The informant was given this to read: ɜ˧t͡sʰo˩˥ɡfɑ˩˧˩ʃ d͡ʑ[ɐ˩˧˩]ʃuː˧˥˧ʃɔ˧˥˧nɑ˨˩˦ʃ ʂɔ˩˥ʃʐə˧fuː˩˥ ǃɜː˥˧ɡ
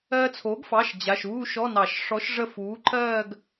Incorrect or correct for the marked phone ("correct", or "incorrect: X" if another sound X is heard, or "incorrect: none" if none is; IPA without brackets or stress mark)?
incorrect: a˩˧˩